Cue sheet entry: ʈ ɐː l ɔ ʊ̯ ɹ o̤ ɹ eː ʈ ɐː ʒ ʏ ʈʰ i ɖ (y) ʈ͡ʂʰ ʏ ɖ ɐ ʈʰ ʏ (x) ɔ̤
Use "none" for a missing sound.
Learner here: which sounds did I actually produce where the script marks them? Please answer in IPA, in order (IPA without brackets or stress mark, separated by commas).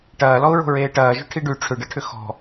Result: y, x